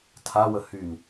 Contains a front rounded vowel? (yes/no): yes